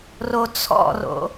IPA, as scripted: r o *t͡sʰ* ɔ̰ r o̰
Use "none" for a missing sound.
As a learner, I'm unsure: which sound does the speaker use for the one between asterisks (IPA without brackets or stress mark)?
t͡sʰ